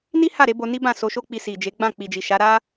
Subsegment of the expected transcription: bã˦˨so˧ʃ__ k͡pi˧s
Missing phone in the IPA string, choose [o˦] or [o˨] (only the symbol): o˦